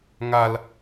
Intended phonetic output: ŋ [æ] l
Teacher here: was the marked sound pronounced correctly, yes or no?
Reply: no